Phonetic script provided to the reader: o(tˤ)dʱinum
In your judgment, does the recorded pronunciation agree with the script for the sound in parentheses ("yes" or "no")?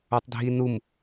yes